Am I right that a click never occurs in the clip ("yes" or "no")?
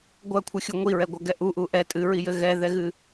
yes